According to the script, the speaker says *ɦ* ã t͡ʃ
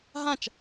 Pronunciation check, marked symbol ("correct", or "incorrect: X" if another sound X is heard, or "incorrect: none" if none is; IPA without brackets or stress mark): correct